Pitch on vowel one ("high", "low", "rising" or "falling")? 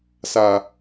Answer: low